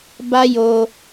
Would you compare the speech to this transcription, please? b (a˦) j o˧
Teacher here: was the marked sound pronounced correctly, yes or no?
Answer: yes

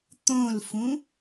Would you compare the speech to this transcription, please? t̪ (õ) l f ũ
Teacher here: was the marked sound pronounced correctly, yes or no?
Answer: yes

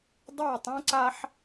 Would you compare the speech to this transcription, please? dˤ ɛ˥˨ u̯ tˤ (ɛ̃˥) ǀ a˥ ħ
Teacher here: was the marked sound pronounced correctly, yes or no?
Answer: yes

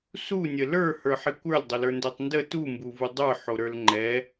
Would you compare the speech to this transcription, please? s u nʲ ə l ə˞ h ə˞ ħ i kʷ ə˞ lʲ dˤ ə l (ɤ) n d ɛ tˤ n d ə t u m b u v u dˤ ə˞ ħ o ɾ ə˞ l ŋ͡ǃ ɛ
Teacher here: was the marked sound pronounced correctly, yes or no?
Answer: no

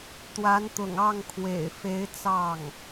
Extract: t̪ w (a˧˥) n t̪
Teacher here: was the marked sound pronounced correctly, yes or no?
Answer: yes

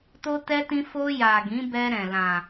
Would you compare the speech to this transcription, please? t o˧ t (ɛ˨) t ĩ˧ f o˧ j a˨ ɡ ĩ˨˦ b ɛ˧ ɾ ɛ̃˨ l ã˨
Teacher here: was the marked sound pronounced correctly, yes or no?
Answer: no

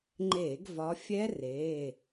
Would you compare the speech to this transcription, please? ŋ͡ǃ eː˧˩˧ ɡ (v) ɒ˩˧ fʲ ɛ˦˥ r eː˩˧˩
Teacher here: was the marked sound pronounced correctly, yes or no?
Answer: yes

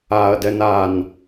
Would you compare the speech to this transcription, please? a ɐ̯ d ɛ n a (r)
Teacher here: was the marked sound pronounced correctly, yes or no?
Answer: no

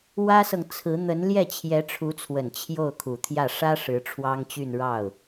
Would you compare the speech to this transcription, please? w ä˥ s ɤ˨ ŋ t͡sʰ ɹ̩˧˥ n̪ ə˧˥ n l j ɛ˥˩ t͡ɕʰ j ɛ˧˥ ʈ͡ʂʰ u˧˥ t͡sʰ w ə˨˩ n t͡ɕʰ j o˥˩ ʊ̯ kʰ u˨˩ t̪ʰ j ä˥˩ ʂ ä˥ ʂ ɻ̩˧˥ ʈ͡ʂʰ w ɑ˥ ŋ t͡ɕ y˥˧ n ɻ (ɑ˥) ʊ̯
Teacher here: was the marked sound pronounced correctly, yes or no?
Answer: no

